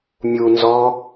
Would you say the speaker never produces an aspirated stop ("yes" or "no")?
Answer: yes